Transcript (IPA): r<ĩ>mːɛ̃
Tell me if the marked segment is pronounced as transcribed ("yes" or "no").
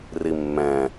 no